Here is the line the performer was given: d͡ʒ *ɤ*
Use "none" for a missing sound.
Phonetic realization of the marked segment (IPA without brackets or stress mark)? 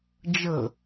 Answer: ɤ